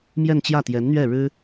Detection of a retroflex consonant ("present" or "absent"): present